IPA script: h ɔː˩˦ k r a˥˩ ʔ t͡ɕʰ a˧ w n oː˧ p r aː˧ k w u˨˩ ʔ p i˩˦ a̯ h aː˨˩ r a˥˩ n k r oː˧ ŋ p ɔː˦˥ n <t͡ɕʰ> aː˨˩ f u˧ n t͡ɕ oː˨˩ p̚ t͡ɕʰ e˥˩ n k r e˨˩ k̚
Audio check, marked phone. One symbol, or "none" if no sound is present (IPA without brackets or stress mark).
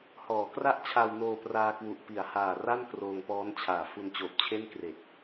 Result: t͡ɕʰ